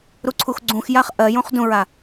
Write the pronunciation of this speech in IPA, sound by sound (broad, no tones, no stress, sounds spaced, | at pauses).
ɾ u ǀʰ u x ɡ͡ǀ ũ x j a χ ʔ ɜ j ũ χ d ũ ɹ a